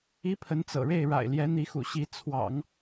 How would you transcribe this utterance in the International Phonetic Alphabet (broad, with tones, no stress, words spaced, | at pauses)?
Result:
i˥pʰə˧˥nt͡sɤ̰˨˩ɻe˥˩ɪ̯ ɻa̰˨˩ɪ̯ljɛ˧˥ n̪i˧˥xṵ˨˩ɕi˧˥ t͡sʰwɑ̰˨˩˦ŋ